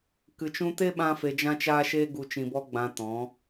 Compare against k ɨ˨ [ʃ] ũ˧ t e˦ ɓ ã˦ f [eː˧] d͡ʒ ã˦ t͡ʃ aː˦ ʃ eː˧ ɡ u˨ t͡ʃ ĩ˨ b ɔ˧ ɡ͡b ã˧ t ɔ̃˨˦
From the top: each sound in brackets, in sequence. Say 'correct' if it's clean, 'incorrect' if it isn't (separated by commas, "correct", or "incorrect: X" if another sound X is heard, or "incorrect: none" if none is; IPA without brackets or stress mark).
incorrect: t͡ʃ, incorrect: e˧